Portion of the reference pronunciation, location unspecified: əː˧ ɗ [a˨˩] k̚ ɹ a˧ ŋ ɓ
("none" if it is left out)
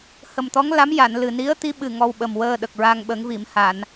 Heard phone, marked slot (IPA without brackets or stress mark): ə˨˩